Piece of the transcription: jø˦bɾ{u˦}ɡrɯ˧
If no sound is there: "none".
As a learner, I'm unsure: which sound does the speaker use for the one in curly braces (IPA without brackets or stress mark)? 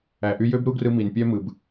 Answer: u˦